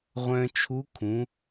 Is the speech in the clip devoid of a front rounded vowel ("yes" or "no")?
no